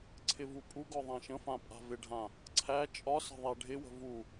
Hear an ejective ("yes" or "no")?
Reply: yes